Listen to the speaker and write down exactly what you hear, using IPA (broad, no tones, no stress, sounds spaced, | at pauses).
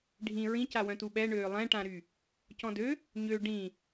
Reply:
ɖʱ ĩ ɹ ĩ c a w œ̃ t u ɓ ɛ ɳ øː lˠ ɛ̃ ʈ ã ɾ y | c ɔ̃ d ø | ɲ ø ɖ ĩ